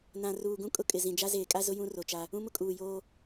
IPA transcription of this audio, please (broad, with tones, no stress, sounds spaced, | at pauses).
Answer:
n ã˨ r uː˨ ɡ ũ˦ kʼ ʊ˦ kʼ ɪ˨ z ĩ˨ d͡ʒ a˦ z eː˨ kʼ a˦ z ʊ˦ j ũ˦ r o˨ t͡ʃ a˦ | ũ˦ m ʊ˦ kʼ uː˨ j oː˦